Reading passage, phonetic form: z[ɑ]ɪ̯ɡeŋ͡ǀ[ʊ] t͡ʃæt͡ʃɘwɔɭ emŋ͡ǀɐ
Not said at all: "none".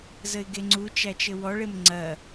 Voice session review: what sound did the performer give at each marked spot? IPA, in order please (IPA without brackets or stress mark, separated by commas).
ə, u